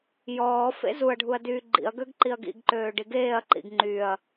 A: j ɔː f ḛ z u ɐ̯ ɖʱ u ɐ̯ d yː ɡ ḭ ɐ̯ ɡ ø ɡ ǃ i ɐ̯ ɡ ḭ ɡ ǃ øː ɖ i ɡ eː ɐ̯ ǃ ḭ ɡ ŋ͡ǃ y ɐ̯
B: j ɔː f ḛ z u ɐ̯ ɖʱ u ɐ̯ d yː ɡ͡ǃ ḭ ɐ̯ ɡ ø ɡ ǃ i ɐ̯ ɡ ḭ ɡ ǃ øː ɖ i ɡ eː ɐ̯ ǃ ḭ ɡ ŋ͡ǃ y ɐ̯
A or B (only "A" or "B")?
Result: B